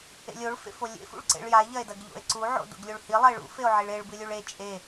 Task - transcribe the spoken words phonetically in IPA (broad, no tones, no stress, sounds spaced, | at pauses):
ḛ lʲ o ɭ f ḛ f o lʲ ḛ f ṵ ɭ ǀ ḛ ɭ j a e̯ ʎ ɐ e̯ d ɐ ɡ ʎ o̰ e̯ ǀ u ʕ o̰ d o̰ ɡ lʲ o ɭ h i lˠ ɐ e̯ ɭ ṵ f e o̯ ʕ i ɭ e ɭ b ɨ lʲ ʉ ɭ e t͡ʃʼ e